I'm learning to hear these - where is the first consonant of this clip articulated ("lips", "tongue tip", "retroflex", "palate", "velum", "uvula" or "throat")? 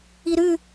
tongue tip